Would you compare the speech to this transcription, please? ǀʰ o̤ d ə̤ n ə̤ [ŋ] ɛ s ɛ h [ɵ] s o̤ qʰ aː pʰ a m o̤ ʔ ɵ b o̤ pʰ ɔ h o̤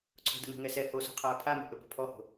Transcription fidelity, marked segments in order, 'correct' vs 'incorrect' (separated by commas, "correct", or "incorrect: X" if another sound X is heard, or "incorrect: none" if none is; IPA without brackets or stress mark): correct, incorrect: o